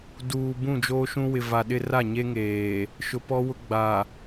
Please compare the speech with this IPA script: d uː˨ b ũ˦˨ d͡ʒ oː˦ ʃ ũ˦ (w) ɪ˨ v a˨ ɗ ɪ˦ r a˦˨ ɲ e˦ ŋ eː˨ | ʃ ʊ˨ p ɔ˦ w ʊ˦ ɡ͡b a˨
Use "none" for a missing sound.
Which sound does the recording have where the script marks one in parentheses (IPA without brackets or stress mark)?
w